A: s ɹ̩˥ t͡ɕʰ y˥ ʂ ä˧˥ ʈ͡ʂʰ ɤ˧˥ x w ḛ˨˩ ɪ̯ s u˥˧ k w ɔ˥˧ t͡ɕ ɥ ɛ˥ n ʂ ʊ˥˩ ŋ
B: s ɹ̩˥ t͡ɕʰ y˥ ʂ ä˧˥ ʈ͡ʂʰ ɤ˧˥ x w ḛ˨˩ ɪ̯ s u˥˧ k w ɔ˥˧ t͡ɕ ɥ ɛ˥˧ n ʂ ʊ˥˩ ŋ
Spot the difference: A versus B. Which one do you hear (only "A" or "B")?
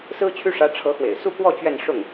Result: B